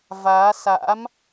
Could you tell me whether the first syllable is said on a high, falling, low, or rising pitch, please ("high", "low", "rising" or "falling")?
rising